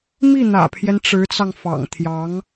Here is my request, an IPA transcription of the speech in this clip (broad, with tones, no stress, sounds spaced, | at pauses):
m i˥˩ n̪ ä̰˨˩ pʰ j ɛ˦ n ʈ͡ʂ ɻ̩˧˥ t͡s ɑ˧ ŋ f ɑ̰˨˩ ŋ t̪ʰ j ɑ˧˥ ŋ